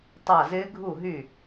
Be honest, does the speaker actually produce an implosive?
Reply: no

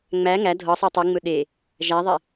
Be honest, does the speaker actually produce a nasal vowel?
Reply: no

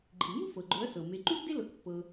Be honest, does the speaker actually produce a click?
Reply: yes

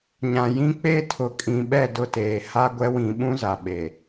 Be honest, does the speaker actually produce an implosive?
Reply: yes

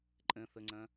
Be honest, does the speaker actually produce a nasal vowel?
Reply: yes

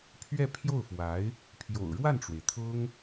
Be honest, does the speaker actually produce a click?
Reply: no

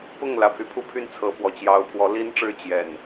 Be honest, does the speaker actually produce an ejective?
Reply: no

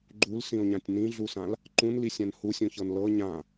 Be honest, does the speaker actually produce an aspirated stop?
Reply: no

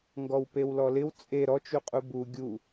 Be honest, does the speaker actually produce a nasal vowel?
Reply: no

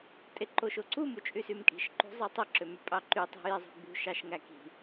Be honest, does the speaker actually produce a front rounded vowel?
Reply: yes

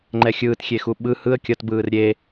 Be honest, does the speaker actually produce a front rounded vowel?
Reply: no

